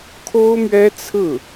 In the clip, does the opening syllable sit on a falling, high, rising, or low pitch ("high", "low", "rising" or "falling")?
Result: high